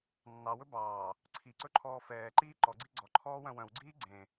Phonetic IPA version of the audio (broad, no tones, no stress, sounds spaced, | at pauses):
nː ɑ w ɵ b ɑː | ǀʰ i ǀ ɵ ǃʰ ɔː f ɛː ǃ iː ǃ ɔ ɡ͡ǀ i ɡ͡ǀ ɔ ǃʰ ɔː w œ̃ w œ̃ w ɡ͡ǀ iː ɡ͡ǀ ẽ